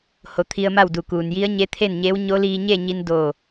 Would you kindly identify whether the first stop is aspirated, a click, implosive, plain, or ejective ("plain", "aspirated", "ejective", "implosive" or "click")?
aspirated